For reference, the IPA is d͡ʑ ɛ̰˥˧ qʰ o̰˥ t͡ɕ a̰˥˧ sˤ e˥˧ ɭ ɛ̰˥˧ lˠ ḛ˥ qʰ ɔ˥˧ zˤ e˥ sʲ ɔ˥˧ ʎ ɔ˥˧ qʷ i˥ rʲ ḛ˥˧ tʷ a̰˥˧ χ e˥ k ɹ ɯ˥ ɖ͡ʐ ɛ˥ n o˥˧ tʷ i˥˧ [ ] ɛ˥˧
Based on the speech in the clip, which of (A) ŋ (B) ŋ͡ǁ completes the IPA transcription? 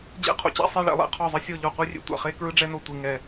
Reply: A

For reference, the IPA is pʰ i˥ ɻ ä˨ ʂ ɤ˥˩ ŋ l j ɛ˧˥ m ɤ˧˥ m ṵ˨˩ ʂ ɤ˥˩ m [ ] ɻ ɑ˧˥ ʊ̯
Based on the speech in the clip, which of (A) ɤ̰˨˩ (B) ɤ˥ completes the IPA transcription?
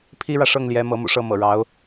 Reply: A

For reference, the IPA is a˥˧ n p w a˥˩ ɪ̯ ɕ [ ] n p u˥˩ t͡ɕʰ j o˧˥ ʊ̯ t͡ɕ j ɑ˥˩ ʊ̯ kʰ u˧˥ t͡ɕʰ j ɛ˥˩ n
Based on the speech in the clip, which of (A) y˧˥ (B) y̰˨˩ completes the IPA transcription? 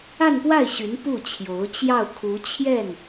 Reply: A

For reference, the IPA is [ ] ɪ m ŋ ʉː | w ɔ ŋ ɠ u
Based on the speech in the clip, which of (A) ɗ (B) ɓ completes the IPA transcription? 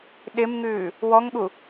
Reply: A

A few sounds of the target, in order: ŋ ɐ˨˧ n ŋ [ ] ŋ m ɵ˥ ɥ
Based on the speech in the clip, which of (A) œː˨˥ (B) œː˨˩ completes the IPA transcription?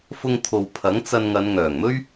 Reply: B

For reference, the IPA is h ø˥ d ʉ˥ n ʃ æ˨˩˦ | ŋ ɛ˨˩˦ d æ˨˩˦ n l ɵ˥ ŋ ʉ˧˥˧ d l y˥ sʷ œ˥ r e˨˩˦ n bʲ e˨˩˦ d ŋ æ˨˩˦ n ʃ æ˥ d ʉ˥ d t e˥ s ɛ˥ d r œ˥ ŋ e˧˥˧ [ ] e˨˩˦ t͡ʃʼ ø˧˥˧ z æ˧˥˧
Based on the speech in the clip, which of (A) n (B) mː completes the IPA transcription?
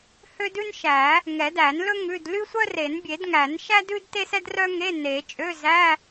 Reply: A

